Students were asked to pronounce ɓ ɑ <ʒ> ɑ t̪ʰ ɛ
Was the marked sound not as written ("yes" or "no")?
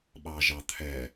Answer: no